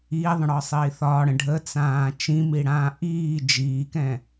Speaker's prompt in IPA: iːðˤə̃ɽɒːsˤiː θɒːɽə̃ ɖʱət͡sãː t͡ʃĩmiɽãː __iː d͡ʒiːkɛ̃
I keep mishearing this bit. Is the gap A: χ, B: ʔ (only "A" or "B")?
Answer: B